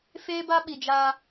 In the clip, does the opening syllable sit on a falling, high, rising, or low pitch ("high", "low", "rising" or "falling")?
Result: high